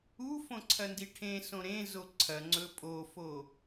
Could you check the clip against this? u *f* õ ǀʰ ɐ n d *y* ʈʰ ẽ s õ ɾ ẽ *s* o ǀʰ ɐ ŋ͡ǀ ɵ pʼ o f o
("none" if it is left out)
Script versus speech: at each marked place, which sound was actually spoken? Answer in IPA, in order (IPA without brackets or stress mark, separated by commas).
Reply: f, i, z